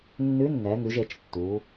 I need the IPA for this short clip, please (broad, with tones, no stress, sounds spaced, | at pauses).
nː ʉ˧˥ nː ɛ˩˧ ŋ ʉ˩˧ ʒ e˩˧ t͡ʃ tː uː˩˧